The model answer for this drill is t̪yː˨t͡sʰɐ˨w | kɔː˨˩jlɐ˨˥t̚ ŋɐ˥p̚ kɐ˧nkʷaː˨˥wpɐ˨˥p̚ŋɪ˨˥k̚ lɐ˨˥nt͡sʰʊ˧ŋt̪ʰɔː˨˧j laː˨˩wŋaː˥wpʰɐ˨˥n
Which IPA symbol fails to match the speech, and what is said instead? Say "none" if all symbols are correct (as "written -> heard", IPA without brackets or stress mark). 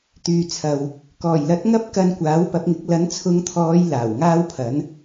ʊ˧ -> ʊ˨˧